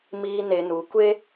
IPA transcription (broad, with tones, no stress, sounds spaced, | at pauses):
m iː˦ n e˧ n u˨˦ kʷ e˦